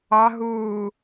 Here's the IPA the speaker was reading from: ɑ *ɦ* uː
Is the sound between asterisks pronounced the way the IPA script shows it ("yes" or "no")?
yes